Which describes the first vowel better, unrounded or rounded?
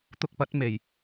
rounded